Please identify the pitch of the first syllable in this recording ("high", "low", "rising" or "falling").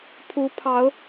rising